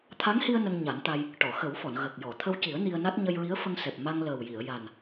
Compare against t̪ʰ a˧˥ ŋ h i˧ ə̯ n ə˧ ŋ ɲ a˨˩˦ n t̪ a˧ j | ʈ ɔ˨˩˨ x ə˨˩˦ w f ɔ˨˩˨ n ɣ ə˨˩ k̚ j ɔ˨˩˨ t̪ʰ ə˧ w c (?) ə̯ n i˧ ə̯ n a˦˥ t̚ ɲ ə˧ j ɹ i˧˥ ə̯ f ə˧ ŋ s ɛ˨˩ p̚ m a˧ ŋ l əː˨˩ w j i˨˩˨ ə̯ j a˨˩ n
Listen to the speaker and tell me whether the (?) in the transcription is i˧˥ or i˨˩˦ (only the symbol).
i˨˩˦